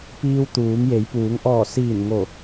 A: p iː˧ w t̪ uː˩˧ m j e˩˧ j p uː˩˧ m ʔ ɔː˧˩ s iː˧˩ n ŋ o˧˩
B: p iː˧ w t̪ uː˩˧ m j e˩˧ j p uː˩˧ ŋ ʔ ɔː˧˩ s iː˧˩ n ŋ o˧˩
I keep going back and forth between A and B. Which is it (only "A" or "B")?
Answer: B